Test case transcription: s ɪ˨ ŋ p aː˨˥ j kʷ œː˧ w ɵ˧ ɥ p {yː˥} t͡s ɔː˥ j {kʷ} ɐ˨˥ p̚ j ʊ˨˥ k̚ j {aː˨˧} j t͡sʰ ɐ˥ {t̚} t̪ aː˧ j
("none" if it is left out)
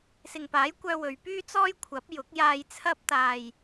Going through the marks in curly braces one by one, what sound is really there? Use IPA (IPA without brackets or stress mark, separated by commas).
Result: yː˥, kʷʰ, aː˧, p̚